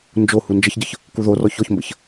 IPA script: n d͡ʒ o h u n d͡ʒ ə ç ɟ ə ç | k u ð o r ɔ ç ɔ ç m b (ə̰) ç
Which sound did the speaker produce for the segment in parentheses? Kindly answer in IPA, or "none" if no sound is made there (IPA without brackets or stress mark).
ə̰